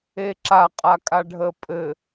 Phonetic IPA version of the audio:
eǁaqʼakʼa ɖʱəpʼɘ

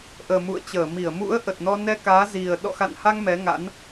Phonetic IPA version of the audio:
ʔəː˨˩mṵ˧˨ə̯t͡ɕəː˧˩ mi˧˩ə̯mṵ˧˥ə̯ʔə˨˩t̚nɔ˧ nɛ˧kaː˨˦zi˨˩ə̯ ɗɔ̰˧˨xa̰˧˨nha˧ŋ mɛ˨˦ŋa̰˧˥n

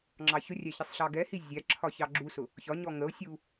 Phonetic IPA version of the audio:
ŋ͡ǁɑçʊrʲæ çɪsˤɬɑɡɛhi zʲæǁʰɒ çɑɡ͡ǁusʊ | çɒɲɔ ŋəo̯sʲu

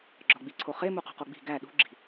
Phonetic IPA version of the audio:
ɡ͡ǁɒɡ͡biǀʰoχe muqṳqoɡ͡bi̤ ɡæ ɗṳɡ͡ǁi̤

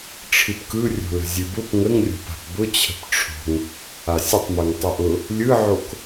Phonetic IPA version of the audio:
ʈ͡ʂʰɨpkɯrʲo̤lə̤ zʲɨbʊp ŋəŋrʲo̤pa̤p bʊt͡ɕʰə̤p ʈ͡ʂʰo̤ŋ | asʲətˤmɯŋ tˤɨʔʊ | lʲɯʕok

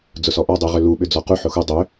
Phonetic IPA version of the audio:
d͡zʊsɔʔɔ dˤyʁʏlu ɓʏd͡zɔqu ħʊxu dˤʏ

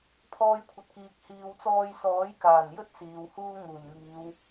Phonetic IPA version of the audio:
pʰɔː˧jkʷʰɐ˨t̚kiː˨k̚ hiː˨wt͡sɔː˧jsɔː˨˥j kaː˨˩njɵ˥t̚ siː˨whuː˥ŋuː˨˩jŋiː˨˧w

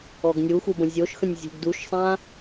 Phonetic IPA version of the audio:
ɔɡnʲuxu bə̃zʲoʃxə̃nʲ zʲṳɡduʃsˤã

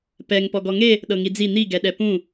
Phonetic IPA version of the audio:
pɛŋ pɔɡɔŋe | ɗɤŋid͡zi n̪iɡɛɗɛ pũ

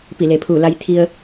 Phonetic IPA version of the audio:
pi˧˩le˩pʰuː˧˩ la˧jt̪ʰi˧ə̯

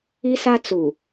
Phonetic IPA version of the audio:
i˦sa˦ t͡su˨

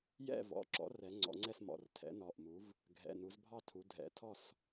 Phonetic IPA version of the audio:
jɛ̰˥˨vɔ̰˩˧˩ǁɔ̰˩˥rɛ˩˧ ŋ͡ǀɔ̰˩˧ŋ͡ǀɛ˥˨smɔ̰˩˧˩r tʰɛ̰˩˥nɔ˩˧˩ʔmu˩˥v | ɡʱɛ̰˩˧˩nu˩˧zbʱɑ˥˨tʰu˩˧ dʱɛ̰˩˧tʰɔ˥˨s

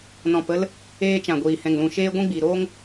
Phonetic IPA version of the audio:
nɔ̃˨pə˧l | eː˧t͡ʃã˨ɡʷiː˨ hɛ̃˨ŋlũ˨ʃeː˧ ɡʷĩ˦ɡ͡bi˨ ɾoː˦ŋ

